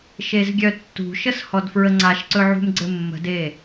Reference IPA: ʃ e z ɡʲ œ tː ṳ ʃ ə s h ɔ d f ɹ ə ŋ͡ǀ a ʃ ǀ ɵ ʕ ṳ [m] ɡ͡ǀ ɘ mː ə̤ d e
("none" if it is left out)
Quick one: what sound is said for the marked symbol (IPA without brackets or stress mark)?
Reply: m